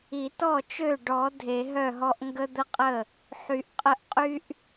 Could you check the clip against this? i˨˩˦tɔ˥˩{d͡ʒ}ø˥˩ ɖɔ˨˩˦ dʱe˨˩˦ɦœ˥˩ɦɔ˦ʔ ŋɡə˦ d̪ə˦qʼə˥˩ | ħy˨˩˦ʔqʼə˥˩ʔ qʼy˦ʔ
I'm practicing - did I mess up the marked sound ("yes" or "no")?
yes